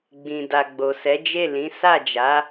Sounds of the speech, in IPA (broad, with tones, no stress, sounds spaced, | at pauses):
ɡ͡b ĩ˨ d a˨ ɡ͡b o˨ s ɛ˨˦ d͡ʒ e˦˨ l ĩ˨˦ s a˦˨ d͡ʒ a˨˦